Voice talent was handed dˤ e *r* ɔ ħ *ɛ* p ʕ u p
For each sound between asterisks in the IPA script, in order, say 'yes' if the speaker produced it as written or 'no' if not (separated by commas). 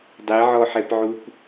no, yes